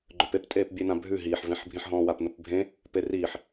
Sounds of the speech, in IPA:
ɡ͡ǃ œ p e p tʼ eː p bʲ e n ã bʱ ʉ ɦ iː ħ v ẽ ħ bʱ ĩ ħ ɦ ɔ̃ː w a p n ʊ p bʱ ẽ | p e r iː ħ

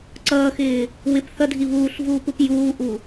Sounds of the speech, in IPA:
ǀ ʌː x ɪː | w ɪ p θ ʌ dʱ i β uː ɬ v uː p u p j uː ʔ u

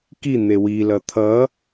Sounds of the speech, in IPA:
k i n̪ e w i l ʌ t̪ʰ ʌ

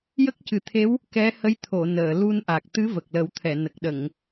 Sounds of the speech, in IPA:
j ə˦˥ k̚ c ɨ˨˩˦ t̪ʰ e˧˥ w | k ɛ˧˥ h ə˧˥ j t̪ʰ o˨˩˨ n əː˨˩˨ l u˧ n ʔ a˨˩ k̚ t̪ ɨ˧˥ v ə˨˩ k̚ l ə˨˩˦ w t̪ʰ ɛ˨˩˨ n ə˨˩ k̚ ɗ ə˨˩˨ ŋ

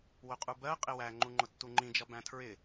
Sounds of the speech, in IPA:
w ʊ qʼ u b ɜ qʼ ɪ w æ ŋ͡ǃ u ŋ͡ǃ ʊ tː u ŋ͡ǃ ĩ d͡ʒ ʌ b æ̃ tʰ ɹ ɪ

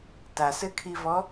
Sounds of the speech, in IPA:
t a s ɘ kʰ i v ɔ

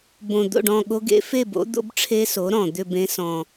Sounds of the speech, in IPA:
b õ˨˩ d̪ o̰˥˨ ɖ ɔ̃˥˨ ɠ o˦˥ ɡ ḛ˩˥ f e˥˨ b o̰˩˥ d̪ o̰˦˥ b ʈ͡ʂʰ e˦˥ s o˩˥ ɾ ɔ̃˨˩ d̪ ʏ˥˨ b ẽ˦˥ s ɔ̃˨˩

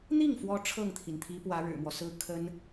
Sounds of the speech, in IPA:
n̪ i˥˩ ŋ f w ɔ˧˥ ʈ͡ʂʰ ɤ˥˩ ŋ t̪ʰ i˩ n t̪ʰ i˧˥ p w ä˧˥ ɻ ɻ̩˨˩ m w ɔ˦ s ɹ̩˥ kʰ ə˥ n

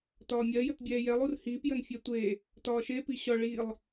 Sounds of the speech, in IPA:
t ɒː mʲ ɜ j ə t bʲ ɛː j ɛ lˠ u r h iː p j ə n fʲ ɛ tʷ e | t ɒː ʃ e p i ɕ ɒ ɭ i lˠ

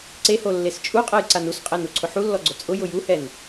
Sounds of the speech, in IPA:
ǀ e h o lː e s t͡ʃʼ u qʼ ɛ j ǀ a n u s qʼ ɛ n u ǀʰ ʊ ħ u lː ɔ ɡ͡ǀ ʊ t͡sʼ ʊ j ʊ j u h ɛ n

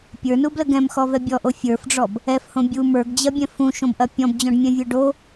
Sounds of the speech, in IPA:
pʲ ə˞ n u b l ə ɡ ɛ̃ m x ɔ v ɛ bʲ ɔ ʔ o fʲ ə˞ f ɖ͡ʐ ɔ b | ɛ f h õ bʲ u m ə˞ ɡ d͡ʑ ɐ bʲ ɛ̃ f ũ ʃ õ b ʔ ɐ pʲ ɔ̃ b d͡ʑ ɔ̃ ɖ mʲ ɛ̃ vʲ ə˞ ɖ o

